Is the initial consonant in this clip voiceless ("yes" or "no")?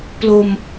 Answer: yes